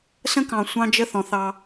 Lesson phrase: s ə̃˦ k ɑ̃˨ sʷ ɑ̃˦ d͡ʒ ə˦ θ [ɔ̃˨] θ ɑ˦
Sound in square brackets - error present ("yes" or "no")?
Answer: no